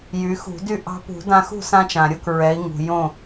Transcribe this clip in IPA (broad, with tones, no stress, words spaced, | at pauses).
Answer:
jy˩˧xṳ˧˩˧dy˥˨ ʔɑ̤˧pṳ˧˩˧dã˧ xṳ˥˨sã˧t͡ʃã˩ɾʲo˥˨k ɹɛ˩˧i̯ ŋṳ˩ jõ˥˨